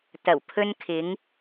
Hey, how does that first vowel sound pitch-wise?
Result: low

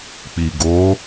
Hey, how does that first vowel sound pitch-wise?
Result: low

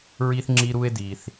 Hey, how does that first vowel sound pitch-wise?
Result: high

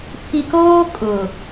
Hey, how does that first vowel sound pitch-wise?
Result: low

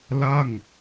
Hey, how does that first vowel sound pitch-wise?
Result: falling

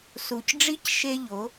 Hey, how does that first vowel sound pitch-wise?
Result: low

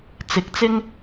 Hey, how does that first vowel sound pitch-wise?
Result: rising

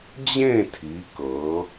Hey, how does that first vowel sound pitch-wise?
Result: falling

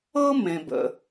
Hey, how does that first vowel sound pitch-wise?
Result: high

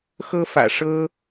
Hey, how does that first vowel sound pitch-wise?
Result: high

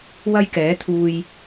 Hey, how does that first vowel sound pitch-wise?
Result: high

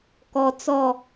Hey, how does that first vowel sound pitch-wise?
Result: low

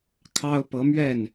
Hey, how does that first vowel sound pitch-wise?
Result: high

